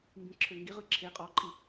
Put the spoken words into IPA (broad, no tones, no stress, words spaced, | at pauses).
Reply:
mbĩǁʰøŋɡiʁɯ ǁʰe qʼɔǃʼi